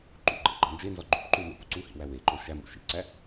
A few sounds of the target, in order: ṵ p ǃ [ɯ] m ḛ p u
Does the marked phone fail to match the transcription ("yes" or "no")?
yes